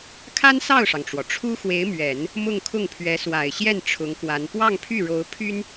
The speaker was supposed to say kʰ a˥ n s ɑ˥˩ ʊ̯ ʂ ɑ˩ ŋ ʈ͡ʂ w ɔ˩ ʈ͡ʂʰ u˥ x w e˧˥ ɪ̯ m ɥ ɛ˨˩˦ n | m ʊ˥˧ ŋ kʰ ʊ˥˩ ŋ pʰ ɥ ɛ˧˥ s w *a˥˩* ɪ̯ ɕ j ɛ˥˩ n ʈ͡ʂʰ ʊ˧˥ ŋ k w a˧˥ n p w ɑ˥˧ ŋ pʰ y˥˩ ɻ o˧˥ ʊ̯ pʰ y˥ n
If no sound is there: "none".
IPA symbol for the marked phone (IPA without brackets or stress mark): a˨˩